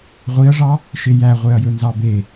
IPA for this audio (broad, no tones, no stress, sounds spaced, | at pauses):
ʁʷ i ɐ̯ ʐ ɑ | ʃ e j æ ʁʷ e ɐ̯ j ɵ n z ɑ b e